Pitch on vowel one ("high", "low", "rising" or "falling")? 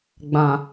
low